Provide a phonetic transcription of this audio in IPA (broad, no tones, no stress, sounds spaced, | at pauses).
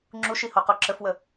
ŋ͡ǁ u ʃ i h o q o ǁ ə f w ə